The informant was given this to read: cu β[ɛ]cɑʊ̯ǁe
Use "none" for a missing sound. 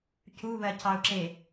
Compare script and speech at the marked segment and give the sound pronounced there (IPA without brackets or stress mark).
ɜ